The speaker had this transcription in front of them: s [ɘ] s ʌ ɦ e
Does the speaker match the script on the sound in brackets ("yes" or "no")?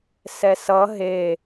no